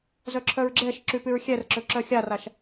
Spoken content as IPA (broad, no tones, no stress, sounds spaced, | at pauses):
z œ ǁʰ œ ɹ ɡ͡ǁ ɛ ʃ ǁ y p y ɹ xʲ ɛ r ǁ ø ǁ œ xʲ a r a ʃ